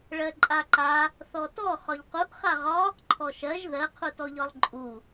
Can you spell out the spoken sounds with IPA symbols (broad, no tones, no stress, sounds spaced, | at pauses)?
ɭ ɜ ǃʼ a ǃ a | θ ɔ t ɔ χ ɒ ʎ q u ʔ χ a ʁ ɒ | ǃʰ ɔ ʃ ɜ ʒ ð ɜ qʰ u t ɔ ʎ ɒ lˠ ǃʼ u